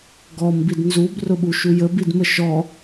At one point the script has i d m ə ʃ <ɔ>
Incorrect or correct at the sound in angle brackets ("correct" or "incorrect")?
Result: correct